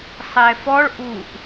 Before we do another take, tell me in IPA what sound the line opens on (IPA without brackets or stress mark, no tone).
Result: sˤ